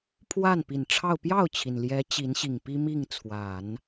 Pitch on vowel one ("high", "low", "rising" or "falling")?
falling